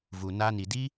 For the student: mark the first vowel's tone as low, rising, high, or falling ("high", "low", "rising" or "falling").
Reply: low